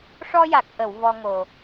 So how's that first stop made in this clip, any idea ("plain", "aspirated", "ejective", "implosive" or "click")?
plain